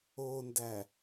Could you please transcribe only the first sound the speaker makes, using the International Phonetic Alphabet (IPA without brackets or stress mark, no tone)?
o